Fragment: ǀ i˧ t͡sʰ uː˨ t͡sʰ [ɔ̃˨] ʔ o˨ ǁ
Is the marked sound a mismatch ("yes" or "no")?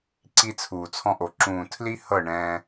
yes